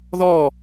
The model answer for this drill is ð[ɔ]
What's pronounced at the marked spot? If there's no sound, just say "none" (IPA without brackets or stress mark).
ɔ